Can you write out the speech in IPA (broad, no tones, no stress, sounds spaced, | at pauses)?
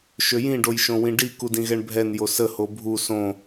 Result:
ʃ ø j ĩ ɖ o j ʃ õ w ĩ ɖ i k u d ĩ ɣ ɛ ɳ bʱ ɛ n j o s ə h o bʱ u s õ